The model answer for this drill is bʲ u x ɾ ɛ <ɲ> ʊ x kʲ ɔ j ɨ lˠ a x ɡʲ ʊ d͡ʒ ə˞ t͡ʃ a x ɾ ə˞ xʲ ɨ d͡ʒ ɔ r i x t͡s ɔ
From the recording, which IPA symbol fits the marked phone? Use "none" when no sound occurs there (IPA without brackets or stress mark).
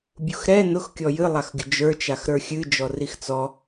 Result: n